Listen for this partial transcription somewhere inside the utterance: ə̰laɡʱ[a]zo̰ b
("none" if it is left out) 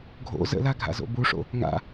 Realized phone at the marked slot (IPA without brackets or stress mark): a̰